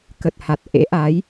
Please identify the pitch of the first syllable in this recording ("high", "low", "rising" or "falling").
low